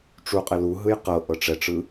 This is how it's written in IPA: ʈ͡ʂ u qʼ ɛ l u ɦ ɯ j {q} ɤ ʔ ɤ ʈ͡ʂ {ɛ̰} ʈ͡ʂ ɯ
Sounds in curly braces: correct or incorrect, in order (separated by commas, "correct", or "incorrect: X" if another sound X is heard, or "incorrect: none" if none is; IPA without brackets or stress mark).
correct, incorrect: ɛ